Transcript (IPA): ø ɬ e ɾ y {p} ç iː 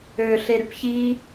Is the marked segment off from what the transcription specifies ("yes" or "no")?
no